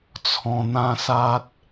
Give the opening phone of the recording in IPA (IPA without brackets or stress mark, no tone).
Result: t͡sʰ